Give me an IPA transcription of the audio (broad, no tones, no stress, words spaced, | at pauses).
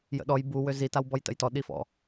jə̰ɗɔj bu wøzi tawbɔjtə̰jtɔ ɗifɔ̰